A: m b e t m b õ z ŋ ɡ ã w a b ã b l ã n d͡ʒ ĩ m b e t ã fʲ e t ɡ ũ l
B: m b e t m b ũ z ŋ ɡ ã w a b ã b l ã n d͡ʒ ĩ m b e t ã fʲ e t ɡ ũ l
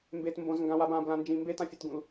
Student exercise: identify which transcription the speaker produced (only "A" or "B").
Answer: A